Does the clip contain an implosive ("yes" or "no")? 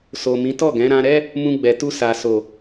no